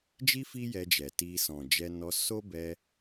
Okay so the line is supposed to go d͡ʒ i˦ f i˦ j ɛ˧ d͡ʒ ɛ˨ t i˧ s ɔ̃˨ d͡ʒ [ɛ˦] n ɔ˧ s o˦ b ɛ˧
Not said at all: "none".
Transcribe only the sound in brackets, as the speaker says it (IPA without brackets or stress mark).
ɛ˧